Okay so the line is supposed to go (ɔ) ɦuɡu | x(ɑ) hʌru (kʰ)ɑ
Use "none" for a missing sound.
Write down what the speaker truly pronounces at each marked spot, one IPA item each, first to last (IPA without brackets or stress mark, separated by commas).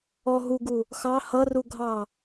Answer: ɔ, ɑ, ɡʱ